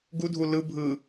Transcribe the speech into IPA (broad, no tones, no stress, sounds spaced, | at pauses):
ɡ u dʱ u l ɯ bʱ ɯ